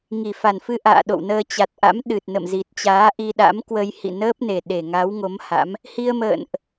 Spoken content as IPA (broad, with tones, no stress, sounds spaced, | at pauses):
ŋ i˨˩ f a˨˩ n f ɨ˧ ʔ a̰ː˧˨ ɗ o̰˧˨ w n əː˧ t͡ɕ a˨˩ t̚ ʔ a̰˧˥ m ɗ ɨ˨˩ t̚ n ə̰˧˨ m z i˨˩ t̚ t͡ɕ aː˨˦ ʔ i˧ ɗ a̰˧˥ m k w ə˧ j h ḭ˧˨ n əː˦˥ p̚ n e˨˩ ɗ e˨˩ ŋ a˨˦ w ŋ o˨˦ m h a̰˧˥ m | h i˧ ə̯ m ə̰ː˧˨ n ʔ